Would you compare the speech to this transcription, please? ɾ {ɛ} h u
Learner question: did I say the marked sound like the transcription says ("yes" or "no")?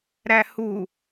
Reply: no